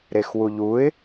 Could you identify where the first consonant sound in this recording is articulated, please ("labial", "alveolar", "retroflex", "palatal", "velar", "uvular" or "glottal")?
alveolar